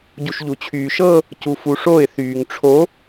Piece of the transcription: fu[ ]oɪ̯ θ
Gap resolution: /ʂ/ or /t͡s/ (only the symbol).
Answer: ʂ